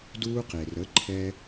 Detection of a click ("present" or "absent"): present